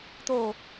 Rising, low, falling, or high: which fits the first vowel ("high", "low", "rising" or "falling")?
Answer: low